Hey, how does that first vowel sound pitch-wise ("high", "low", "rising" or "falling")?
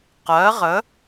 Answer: rising